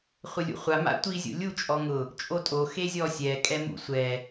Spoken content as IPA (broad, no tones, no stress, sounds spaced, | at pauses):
χʷ ɪ lʲ ṵ χʷ a m a̰ tʷ i zʲ o̰ lʲ u t͡ʃʼ ɔ ŋ ʊ | t͡ʃʼ o tʼ o x e zʲ ɔ sʲ ɛ kʼ ɛ m ṵ sʷ ɛ